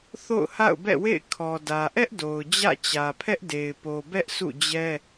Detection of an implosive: absent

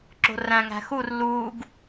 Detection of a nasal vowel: present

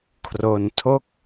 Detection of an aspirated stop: present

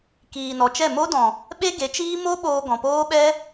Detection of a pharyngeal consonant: absent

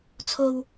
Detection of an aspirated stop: present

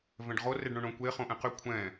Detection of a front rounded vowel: present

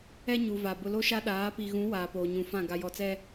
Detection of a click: absent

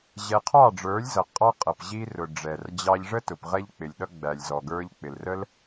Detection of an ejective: present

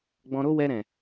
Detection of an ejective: absent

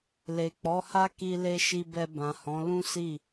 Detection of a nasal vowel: present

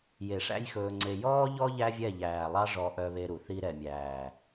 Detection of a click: present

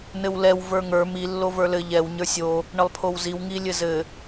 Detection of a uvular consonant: absent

